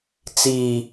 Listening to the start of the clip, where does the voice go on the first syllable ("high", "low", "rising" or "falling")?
low